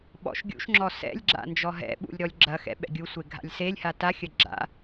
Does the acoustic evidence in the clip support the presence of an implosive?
yes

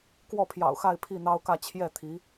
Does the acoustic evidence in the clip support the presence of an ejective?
no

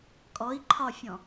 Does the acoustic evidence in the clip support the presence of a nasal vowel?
yes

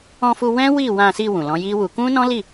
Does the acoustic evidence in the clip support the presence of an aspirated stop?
no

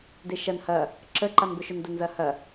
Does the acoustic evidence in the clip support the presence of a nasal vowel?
no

